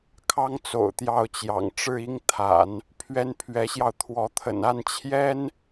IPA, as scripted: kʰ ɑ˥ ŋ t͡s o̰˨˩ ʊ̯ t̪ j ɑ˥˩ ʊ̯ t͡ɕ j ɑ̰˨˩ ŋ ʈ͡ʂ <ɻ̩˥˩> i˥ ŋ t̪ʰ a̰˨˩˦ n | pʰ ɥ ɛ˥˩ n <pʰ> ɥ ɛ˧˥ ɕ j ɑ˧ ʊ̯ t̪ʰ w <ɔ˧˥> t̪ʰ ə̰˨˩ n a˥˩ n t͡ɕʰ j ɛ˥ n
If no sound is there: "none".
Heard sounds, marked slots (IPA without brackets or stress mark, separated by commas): ɻ̩˥˩, pʰ, ɔ˧˥